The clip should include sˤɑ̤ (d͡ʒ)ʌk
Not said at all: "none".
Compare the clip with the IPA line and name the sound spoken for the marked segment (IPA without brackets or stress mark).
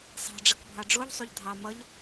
ɖ͡ʐ